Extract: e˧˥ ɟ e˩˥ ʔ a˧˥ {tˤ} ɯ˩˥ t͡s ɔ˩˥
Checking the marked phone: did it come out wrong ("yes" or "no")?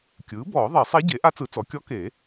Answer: yes